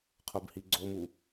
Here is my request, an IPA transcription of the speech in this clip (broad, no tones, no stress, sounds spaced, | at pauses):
qʰ o b h i ɡ͡ǀ o m u